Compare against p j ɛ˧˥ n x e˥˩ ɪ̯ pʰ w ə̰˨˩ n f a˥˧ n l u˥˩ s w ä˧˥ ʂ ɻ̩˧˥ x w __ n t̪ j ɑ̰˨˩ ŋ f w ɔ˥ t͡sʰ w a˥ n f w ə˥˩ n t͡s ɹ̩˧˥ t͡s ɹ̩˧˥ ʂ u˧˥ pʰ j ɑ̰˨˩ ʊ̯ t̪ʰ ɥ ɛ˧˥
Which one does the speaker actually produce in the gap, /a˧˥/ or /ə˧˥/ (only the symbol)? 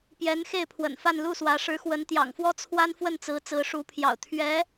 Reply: ə˧˥